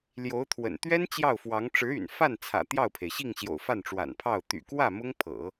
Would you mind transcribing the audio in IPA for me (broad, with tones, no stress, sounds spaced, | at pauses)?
l j o˧˥ ʊ̯ t̪ʰ w ə̰˨˩ n t̪ ɥ ɛ˥ n t͡ɕ j ɑ˥˩ ʊ̯ f w ɑ˧˥ ŋ ʈ͡ʂ ɻ̩˧˥ y̰˨˩ n f a˥˩ n t͡sʰ ä̰˨˩ t̪ j ɑ˥˩ ʊ̯ pʰ e˩ ɪ̯ ɕ i˥˩ ŋ ɕ j o̰˨˩ ʊ̯ f a˥˩ n ʈ͡ʂ w a̰˨˩ n pʰ ɑ˥˩ ʊ̯ t̪ y̰˨˩ k w ä˥˩ m ʊ˥ ŋ pʰ ɤ̰˨˩˦